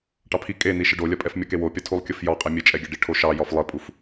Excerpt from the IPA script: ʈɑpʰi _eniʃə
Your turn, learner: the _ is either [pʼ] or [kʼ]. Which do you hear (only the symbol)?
kʼ